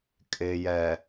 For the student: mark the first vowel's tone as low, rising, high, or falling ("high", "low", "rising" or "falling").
low